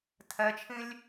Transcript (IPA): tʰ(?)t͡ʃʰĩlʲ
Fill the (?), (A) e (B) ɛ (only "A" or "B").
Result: B